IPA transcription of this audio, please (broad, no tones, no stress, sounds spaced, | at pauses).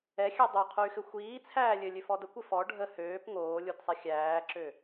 ɛ xʲ ø dˤ ø qʰ o y̯ x ɘ xʷ iː t͡sʰ æː lʲ ɘ lʲ ø f ɔ d ə kʷ ɘ f ɔ ɖʱ ə h øː p ŋ oː lʲ o d sˤ i xʲ æː ǁ ø